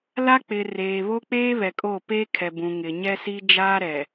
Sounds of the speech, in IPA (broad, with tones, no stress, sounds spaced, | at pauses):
l a˦ k͡p ɪ˨ r eː˨ β o˦ k͡p eː˦ β ɛ˨ kʼ o˦˨ p eː˦ kʰ ɛ˨ b ũ˨ ŋ ɪ˨ ɲ ɛ˦ s i˦ d͡ʒ aː˦ ɾ ɛ˨